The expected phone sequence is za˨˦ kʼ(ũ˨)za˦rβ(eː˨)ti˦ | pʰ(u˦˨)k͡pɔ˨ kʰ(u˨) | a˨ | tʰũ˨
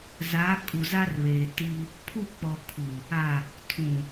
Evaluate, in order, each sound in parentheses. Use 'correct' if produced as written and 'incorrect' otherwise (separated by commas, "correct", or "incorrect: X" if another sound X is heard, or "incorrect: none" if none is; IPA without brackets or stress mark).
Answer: incorrect: u˨, correct, correct, correct